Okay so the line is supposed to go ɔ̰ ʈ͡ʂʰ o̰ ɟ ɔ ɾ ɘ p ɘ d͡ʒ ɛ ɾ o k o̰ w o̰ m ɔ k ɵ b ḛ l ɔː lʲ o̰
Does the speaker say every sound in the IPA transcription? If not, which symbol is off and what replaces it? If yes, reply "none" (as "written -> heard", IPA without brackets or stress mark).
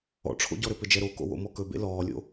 none